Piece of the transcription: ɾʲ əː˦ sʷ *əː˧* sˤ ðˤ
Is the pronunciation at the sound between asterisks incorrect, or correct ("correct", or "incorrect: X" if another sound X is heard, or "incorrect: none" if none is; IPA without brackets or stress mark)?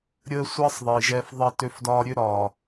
incorrect: əː˦